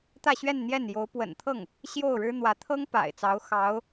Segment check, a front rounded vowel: absent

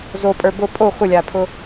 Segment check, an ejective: present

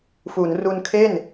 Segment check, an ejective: absent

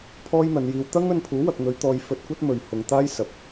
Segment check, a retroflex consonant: absent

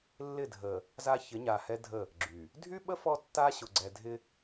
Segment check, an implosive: present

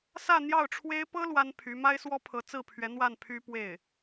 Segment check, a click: absent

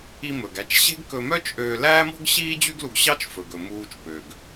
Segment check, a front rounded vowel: present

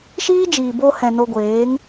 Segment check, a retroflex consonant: absent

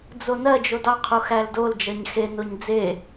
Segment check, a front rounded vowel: absent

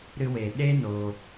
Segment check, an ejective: absent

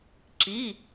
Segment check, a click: present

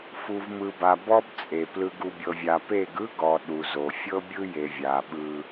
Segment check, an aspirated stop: absent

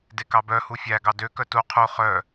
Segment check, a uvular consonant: present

